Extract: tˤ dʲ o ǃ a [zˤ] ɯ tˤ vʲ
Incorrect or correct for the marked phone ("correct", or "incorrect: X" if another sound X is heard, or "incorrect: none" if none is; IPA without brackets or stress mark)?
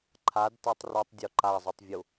correct